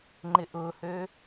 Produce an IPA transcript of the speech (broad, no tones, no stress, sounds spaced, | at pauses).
ŋ͡ǃ ɪ ʔ ʊ h ø